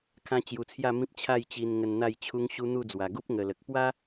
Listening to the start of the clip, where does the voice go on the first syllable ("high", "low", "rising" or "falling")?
high